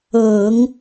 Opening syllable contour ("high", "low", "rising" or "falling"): low